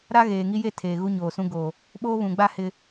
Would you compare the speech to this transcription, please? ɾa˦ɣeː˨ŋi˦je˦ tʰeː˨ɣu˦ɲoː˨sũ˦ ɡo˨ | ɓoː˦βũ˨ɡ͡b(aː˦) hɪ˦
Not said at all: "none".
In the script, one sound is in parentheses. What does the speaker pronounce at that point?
a˦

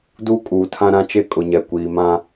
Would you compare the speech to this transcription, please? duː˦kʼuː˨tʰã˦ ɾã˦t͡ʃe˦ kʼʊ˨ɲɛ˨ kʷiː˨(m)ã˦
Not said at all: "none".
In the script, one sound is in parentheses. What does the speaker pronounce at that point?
m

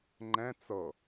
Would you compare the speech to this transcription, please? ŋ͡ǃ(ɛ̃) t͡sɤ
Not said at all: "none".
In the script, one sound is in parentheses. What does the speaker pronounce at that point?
ɛ̃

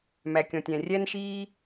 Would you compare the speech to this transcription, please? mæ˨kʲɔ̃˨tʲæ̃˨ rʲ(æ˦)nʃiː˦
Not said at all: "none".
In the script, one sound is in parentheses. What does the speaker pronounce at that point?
æ˦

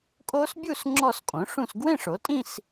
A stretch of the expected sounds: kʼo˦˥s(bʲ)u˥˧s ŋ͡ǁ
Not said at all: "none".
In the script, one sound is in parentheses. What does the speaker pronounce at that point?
bʲ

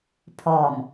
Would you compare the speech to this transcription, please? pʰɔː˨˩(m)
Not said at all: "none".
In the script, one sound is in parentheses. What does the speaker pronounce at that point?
m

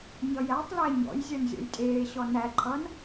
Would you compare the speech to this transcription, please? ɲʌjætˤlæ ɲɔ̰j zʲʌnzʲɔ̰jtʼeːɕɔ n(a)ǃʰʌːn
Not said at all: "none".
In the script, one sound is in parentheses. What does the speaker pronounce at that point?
æ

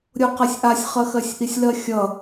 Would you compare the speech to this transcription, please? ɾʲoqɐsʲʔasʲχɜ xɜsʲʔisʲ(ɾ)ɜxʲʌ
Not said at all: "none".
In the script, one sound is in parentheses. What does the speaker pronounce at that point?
l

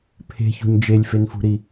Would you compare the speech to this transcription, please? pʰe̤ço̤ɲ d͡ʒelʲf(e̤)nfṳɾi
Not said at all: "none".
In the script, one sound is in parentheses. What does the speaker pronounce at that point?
e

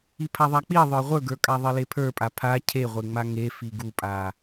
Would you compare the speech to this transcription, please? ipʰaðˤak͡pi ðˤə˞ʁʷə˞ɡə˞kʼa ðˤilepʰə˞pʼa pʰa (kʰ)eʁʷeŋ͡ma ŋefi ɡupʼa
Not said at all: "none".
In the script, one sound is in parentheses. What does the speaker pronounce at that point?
cʰ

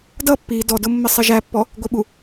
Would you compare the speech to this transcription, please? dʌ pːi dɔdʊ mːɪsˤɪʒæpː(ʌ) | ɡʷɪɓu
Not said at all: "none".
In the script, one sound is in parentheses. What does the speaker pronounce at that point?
ɔ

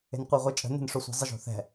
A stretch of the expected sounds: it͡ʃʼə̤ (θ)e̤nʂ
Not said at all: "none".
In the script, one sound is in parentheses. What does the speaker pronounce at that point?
n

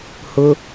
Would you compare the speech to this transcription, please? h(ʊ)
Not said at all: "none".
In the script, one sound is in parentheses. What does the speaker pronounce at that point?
ʊ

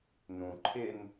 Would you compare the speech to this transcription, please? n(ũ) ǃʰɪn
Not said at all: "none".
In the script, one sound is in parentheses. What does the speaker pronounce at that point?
ũ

